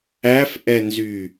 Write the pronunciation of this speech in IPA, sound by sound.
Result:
æ f ʔ ɛ n z y

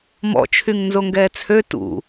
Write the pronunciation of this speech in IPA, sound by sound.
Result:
m ɔ̰ t͡ʃʰ y ŋ n z o ŋ ɡ ɛː t͡sʰ ø t ṵ

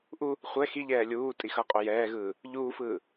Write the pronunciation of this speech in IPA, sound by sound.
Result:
ʔ u | χʷ ɛ x i ʎ ɛː lʲ uː tʼ i x ʌ qʼ o j ɛː ɣ ɯː | ʎ uː f ɯː

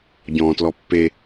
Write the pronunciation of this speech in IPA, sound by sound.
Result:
ɟ ɔ̃ː t l ɔ pː e

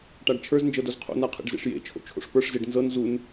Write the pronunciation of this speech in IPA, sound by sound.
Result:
ʈ a ɖ t͡ʃʰ ə˞ z n d͡ʒ ɤ d o z qʰ o̰ n a qʰ ḛ ɖ z ḛ ʂ j ḛ t͡ʃʰ o̰ t͡ʃʰ o̰ ʂ p ə˞ ʂ z e ɖ n z ɤ n z u n

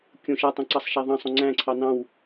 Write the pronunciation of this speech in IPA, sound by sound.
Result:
kʲ õ ʃ a tˤ õ ǀ ɑ sˤ ʃ æ ðˤ ɑ̃ sˤ õ ŋ͡ǀ æ̃ ǀʰ ɑ n ɑ̃ w

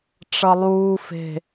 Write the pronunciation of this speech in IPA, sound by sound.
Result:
ʈ͡ʂ ʌ lˠ uː f e̤

